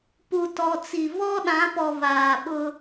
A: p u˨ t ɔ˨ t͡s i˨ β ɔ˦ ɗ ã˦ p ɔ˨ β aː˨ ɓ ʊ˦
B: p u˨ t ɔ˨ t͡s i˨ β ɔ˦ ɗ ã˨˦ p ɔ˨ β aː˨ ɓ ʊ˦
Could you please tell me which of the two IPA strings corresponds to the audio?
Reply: B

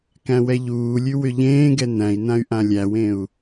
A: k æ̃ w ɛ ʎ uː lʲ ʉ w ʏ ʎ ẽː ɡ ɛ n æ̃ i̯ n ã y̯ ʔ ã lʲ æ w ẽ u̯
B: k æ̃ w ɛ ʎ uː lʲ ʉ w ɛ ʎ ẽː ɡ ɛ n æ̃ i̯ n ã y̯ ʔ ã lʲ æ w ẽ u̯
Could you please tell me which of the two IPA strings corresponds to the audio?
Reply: A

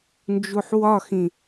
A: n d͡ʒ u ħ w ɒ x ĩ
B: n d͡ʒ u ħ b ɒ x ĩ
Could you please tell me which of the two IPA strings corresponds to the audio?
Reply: A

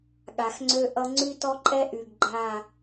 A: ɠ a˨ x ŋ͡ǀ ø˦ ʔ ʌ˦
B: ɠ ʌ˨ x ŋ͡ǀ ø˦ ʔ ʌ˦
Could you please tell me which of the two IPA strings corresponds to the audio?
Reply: A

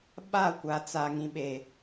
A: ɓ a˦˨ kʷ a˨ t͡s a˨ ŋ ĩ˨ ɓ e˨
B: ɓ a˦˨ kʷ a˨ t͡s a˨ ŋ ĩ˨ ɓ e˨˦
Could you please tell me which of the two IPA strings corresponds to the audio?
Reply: A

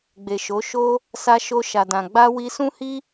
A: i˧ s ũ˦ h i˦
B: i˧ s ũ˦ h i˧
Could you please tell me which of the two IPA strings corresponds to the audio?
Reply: A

